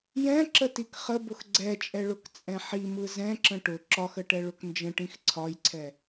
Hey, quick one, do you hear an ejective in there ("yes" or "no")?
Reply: yes